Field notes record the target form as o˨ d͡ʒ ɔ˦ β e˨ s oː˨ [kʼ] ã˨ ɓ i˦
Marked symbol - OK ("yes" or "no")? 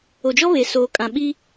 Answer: yes